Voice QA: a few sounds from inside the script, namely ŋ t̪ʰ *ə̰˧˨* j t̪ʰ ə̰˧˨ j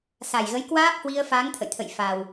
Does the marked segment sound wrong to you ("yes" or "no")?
no